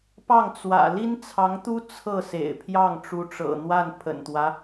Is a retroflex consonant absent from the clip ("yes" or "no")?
no